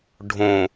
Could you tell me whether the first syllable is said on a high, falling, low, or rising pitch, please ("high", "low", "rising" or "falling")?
low